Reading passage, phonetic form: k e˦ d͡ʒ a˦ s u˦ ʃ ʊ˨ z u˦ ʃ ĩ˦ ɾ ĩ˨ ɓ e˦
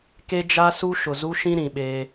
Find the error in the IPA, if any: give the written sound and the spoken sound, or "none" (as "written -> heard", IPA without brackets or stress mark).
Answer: none